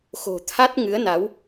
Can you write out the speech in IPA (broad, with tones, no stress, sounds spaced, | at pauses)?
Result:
x o̤˨˩ t̪ʰ a˦˥ t̚ ŋ ɨ˨˦ ə̯ n a˨˦ w